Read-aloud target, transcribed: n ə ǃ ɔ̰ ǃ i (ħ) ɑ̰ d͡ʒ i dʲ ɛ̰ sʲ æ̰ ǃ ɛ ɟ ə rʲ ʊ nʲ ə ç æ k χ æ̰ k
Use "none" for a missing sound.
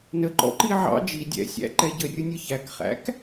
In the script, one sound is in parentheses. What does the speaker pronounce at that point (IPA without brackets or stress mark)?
ʕ